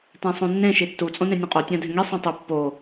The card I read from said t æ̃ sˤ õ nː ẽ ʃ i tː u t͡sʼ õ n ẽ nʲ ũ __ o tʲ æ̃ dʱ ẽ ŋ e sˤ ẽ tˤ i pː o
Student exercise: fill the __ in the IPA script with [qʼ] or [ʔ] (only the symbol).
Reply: qʼ